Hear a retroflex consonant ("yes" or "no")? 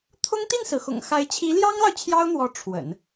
yes